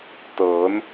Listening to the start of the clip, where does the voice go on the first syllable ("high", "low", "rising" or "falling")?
rising